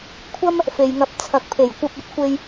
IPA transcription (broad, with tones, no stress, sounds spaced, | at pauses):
kʷʰ ɐ˥ m | f e˨ j ŋ ɐ˨˥ p̚ t͡sʰ ɐ˨ k̚ pʰ e˨˩ j kʷ ɐ˧ p̚ ɵ˨˥ t̚ kʷ e˧ j